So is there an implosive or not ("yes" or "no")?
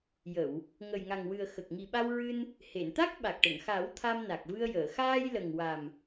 yes